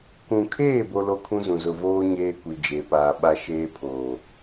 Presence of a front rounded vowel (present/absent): absent